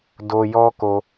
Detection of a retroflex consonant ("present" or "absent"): absent